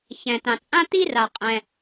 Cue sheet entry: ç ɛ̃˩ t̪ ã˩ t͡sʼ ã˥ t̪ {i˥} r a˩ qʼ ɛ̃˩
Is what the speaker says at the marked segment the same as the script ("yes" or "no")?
yes